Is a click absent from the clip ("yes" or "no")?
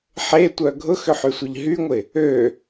yes